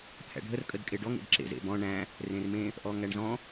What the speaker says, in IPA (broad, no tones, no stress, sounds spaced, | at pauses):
pʰ æ̰ ɖʱ ə r kʼ ə d kʼ e ɖ ɔ ŋ ḛ d ǁ ḛ z ḛ b ɔ̃ ɳ æ̃ | r ẽ r m ẽ | ʔ ɔ ŋ æ ɳ z ɔ̃